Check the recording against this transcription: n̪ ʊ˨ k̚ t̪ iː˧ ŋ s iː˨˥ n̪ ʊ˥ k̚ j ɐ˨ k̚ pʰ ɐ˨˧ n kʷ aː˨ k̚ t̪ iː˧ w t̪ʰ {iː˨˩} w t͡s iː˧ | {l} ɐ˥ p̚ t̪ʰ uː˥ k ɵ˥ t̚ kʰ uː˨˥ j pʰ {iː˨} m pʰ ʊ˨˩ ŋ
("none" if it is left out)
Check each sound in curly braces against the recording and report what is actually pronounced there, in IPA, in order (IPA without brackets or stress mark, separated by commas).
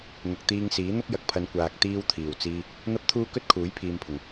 iː˨˩, n̪, iː˨